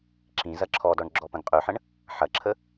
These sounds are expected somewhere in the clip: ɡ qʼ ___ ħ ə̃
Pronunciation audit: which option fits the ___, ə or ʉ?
ʉ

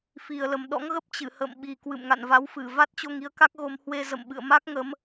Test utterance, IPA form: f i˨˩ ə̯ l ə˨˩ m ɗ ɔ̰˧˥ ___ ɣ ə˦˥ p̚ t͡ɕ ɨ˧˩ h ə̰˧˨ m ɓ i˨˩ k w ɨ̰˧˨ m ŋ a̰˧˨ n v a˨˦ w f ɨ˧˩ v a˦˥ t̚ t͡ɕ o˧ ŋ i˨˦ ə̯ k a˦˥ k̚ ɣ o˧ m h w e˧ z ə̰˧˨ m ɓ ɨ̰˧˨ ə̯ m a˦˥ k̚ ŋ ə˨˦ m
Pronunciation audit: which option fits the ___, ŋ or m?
ŋ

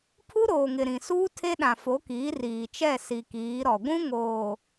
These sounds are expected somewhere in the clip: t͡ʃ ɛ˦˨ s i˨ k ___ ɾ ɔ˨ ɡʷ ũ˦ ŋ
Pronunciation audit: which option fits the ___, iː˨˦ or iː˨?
iː˨˦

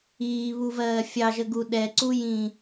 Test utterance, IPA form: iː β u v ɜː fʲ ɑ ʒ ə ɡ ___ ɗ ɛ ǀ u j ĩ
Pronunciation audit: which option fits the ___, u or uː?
u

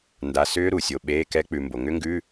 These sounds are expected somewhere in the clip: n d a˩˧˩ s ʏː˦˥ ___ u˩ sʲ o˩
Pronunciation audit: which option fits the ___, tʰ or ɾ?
ɾ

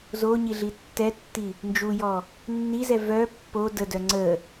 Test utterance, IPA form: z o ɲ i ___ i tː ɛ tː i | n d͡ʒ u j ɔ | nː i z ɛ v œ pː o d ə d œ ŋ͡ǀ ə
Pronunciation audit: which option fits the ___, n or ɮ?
ɮ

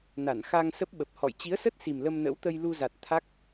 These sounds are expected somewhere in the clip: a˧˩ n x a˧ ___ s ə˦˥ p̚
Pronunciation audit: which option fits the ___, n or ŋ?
ŋ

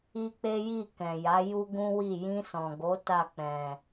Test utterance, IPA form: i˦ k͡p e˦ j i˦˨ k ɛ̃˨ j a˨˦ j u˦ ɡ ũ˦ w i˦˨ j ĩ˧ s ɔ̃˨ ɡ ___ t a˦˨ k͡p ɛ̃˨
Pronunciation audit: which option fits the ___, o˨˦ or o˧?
o˨˦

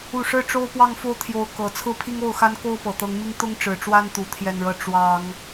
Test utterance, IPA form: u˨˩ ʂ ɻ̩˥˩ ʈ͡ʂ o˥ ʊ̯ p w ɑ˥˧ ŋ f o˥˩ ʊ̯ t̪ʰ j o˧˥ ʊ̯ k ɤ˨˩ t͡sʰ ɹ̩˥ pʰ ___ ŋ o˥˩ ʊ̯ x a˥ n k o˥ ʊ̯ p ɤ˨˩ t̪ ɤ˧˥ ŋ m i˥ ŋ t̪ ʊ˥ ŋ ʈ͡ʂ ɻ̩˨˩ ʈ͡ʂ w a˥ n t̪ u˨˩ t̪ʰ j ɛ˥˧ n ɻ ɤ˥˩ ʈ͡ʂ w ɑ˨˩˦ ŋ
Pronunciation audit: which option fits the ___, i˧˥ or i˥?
i˥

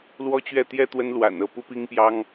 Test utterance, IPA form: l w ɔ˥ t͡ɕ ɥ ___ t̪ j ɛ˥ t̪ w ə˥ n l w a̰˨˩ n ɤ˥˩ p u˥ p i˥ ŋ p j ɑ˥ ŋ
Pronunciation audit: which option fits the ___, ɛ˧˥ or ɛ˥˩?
ɛ˥˩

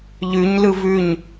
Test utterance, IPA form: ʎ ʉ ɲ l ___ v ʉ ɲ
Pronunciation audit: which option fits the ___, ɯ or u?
ɯ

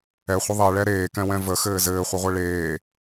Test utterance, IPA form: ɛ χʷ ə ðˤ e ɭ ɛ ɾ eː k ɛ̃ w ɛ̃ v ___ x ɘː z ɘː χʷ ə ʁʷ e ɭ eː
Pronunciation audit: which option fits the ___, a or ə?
ə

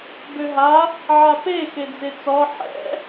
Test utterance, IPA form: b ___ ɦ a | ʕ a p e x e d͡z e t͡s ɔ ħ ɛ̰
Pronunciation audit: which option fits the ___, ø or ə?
ø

